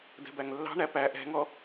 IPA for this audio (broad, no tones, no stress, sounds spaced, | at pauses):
d ɛ̤ b æ ŋ lː ɑ̤ ɳ æ p æ ʔ ɛ̤ ŋ ɔ